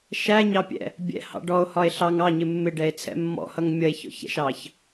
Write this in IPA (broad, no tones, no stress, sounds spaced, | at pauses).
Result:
ʃ æ ɲ ɑ pʲ ɛ̰ | bʲ ɛ̰ h ɑ̰ ɖ ɔ o̯ h ɒ e̯ ɬ ɑ ŋ ɑ ɲ ɪ mː ɪ ɖ ɛ e̯ t͡sʰ ɛ̰ mː ɔ̰ h ʌ ŋ mʲ ʌ e̯ ç ɔ̰ ç ɛ̰ ʃ ɑ ç